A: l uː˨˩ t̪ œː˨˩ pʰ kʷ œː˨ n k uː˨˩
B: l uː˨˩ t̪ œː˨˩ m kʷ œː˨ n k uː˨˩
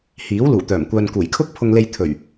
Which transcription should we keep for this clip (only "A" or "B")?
B